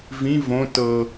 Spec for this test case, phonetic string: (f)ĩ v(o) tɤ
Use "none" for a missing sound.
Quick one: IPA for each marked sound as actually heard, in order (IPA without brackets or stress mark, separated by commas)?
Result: v, õ